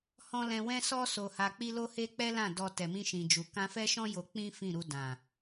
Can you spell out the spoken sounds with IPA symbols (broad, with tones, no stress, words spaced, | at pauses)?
hɔ̃˦ lɛ̃˧wɛ̃˦sɔ˦ so˧ha˧k͡pi˦ lo˦he˦k͡pɛ˦lã˦˨ dɔ˧ tɛ˨mĩ˧ʃĩ˨d͡ʒu˨ kã˧fɛ˦ʃɔ̃˦ jo˧k͡pĩ˦ fĩ˦˨ɾu˧ dã˨